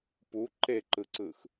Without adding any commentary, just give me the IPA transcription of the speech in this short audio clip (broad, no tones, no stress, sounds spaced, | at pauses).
p u ǃ e ǃ ɯ ǀ ɯ x